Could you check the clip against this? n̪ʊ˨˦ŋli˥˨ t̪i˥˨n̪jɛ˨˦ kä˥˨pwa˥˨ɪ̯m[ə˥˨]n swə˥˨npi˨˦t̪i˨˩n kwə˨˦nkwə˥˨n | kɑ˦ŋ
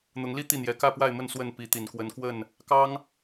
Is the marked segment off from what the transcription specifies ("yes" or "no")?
no